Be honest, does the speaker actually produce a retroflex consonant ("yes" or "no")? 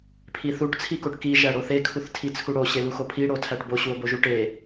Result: yes